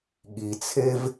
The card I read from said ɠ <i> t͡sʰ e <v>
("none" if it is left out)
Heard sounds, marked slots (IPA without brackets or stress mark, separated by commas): i, v